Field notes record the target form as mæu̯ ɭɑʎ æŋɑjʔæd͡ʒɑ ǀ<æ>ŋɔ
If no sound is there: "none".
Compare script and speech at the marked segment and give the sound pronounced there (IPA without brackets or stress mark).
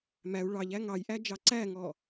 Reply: æ